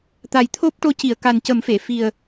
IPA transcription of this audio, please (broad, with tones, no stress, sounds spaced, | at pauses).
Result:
t̪ a˨˩ j t̪ʰ o˦˥ p̚ ʈ o˧ c i˨˩˨ ə̯ k a˨˩ n c ə˨˩˦ m f e˨˩˨ f i˨˩ ə̯